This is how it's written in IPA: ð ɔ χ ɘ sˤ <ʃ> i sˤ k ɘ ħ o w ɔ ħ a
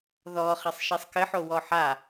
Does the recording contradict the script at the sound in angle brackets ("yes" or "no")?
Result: no